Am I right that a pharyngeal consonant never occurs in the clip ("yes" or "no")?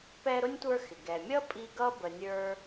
yes